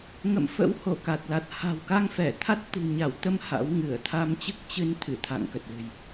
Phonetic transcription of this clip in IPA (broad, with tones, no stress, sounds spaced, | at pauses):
ŋ ə̰˧˨ m f ə̰˧˥ w h o˧˩ k a˨˩ t̚ l a˨˩ t̚ h a̤˨˩ w k a˧ ŋ f ɛ˧˩ t̪ʰ a˦˥ t̚ t̪ ṳ˨˩ ɲ a˧˩ w t̪ ə˧ m h a̰˧˥ w ŋ ɨ˧˩ ə̯ t̪ʰ a˧ m t͡ɕ ɨ˦˥ k̚ t͡ɕ ɨ˧ n t̪ʰ ɨ˧˩ t̪ʰ a̰˧˨ ŋ k ə˨˩ t̚ l ɨ̤˨˩ j